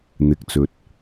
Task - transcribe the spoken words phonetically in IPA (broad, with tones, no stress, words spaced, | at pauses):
n̪ɪ˨k̚t͡sɵ˨t̚